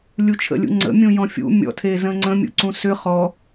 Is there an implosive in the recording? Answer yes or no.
no